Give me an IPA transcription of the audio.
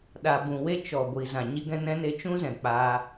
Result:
ɗ a˨ b ũ˨ w e˧ t͡ʃ ɔ˨ ɡʷ iː˨ z ã˨ ɲ i˧ ɡ ɛ̃˧ n ɛ̃˧ n e˧ t͡ʃ ũ˦ z ɛ̃˨ k͡p aː˧

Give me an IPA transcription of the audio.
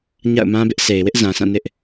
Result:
ɲ a̰˦˨ ʊ̯ m ã˦ b ɪ˦ ʔ sʰ e˨ ɪ̯ w ɪ˦ ʔ z ã˨ s ã˦˨ n ɪ˦ ʔ

